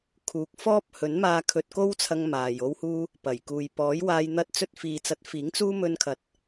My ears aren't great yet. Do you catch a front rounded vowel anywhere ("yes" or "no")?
no